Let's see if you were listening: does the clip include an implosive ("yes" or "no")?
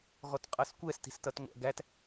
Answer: no